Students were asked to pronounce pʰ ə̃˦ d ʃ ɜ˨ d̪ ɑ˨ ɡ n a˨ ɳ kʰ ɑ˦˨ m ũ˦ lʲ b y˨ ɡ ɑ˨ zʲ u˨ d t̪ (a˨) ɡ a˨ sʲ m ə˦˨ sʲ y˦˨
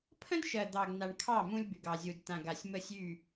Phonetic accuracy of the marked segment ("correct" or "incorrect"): incorrect